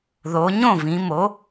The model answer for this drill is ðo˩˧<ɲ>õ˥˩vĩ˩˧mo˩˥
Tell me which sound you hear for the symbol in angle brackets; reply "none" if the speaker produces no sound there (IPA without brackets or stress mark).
ɲ